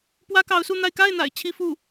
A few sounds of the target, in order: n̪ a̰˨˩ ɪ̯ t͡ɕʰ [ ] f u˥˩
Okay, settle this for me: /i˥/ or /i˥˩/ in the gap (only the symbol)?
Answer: i˥